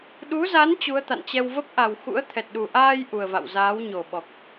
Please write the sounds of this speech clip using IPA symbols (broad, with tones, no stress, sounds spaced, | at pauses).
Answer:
ɗ u˨˦ z a˨˦ n t͡ɕ u˨˦ ə̯ t̪ a̰˧˨ n t͡ɕ ɛ˧ w v ə˦˥ p̚ ʔ a˨˩ w x ṵ˧˥ ə̯ t̪ʰ ɛ˨˩ t̚ ɗ u˨˩ ʔ aː˧ j ʔ u˨˩ ə̯ v a̰˧˨ w z aː˨˦ w ɲ o˨˩ ɓ ɔ˨˩ k̚